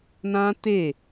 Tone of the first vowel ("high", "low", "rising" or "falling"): high